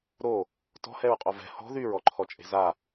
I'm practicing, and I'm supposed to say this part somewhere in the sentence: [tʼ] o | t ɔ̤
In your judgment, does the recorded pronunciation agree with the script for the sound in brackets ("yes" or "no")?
no